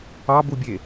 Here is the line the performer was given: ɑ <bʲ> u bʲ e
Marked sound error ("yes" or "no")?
yes